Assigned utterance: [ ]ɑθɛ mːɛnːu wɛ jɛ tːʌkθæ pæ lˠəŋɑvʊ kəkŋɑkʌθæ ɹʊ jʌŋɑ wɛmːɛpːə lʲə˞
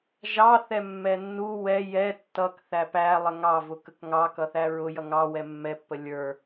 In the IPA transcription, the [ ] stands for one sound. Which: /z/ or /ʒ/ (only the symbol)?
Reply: ʒ